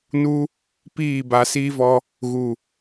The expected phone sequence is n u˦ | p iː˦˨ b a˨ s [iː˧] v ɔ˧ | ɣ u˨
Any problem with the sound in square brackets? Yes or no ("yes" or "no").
no